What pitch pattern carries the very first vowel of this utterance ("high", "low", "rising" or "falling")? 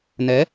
rising